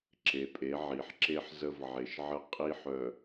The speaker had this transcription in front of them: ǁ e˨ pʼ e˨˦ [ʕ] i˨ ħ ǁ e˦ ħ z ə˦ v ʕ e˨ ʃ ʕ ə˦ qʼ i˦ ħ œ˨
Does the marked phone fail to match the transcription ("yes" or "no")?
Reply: no